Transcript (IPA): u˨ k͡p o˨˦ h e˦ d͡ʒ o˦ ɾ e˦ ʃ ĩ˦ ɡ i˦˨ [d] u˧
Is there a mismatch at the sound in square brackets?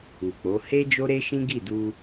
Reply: no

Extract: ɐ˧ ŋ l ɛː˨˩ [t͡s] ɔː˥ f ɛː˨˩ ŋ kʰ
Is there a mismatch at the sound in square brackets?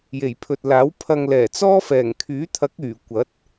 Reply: no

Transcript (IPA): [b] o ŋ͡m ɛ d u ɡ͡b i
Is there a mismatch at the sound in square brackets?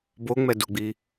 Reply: no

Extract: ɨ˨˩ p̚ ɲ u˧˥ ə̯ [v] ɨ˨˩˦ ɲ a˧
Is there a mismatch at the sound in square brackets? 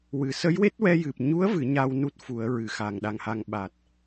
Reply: no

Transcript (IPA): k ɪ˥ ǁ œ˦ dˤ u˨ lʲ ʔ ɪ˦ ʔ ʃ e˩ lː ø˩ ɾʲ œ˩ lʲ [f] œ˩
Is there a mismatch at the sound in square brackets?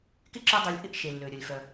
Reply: no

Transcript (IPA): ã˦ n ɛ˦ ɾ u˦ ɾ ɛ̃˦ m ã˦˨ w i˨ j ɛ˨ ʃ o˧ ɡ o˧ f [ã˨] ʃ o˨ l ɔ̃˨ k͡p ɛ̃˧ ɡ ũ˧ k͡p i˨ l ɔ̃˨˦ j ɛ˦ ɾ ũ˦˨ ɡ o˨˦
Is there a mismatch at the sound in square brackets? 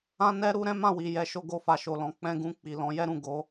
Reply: yes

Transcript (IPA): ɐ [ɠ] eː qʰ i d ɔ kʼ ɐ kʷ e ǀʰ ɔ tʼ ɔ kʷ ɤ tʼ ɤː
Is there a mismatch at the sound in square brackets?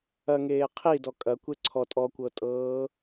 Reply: yes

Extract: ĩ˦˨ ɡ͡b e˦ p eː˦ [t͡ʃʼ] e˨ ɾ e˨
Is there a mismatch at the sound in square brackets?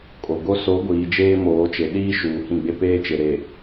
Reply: yes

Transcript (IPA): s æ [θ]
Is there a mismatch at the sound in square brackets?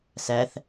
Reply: no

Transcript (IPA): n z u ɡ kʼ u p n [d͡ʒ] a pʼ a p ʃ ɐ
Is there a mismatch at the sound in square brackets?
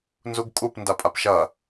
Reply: yes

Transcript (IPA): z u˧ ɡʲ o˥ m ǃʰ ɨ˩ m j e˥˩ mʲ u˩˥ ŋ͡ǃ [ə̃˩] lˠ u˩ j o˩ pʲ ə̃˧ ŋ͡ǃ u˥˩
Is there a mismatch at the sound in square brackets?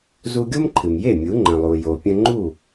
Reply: no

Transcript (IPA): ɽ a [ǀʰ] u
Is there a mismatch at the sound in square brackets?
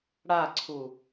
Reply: no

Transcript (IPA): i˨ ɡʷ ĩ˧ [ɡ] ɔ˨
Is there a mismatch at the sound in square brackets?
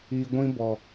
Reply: yes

